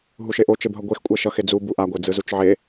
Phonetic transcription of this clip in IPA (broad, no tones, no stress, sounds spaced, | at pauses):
ɦ u ʃ e ʔ o t͡ʃ e b ɦ ʌ ɡʷ e x kʷʼ ɛ ʃ ʌ x e d͡z u b u ʔ a ɡʷ e d͡z ɯ z u t͡ʃ ʕ e